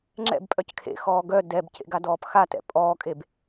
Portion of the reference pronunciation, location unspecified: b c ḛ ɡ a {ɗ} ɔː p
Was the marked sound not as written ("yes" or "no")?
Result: yes